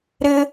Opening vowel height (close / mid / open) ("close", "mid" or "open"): close